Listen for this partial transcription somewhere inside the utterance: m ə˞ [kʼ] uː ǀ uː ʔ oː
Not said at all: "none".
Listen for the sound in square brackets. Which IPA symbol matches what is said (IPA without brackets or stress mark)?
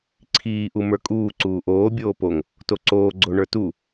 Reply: kʼ